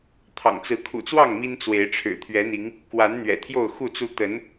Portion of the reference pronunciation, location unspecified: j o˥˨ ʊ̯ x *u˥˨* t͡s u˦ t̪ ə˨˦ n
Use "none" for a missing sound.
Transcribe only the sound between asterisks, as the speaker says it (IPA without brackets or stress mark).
u˥˨